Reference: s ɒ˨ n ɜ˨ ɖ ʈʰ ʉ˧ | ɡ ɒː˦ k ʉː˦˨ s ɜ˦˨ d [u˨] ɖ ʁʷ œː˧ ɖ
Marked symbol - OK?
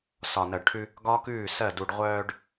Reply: yes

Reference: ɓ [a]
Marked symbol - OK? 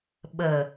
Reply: no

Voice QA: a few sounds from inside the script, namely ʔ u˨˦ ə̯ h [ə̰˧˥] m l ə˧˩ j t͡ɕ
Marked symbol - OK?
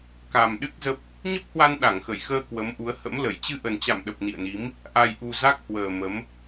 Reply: yes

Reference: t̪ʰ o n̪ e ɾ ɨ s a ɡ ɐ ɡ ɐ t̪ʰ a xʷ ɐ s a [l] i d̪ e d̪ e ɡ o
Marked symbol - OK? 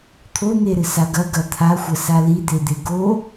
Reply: yes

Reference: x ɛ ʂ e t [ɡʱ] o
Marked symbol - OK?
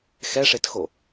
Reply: no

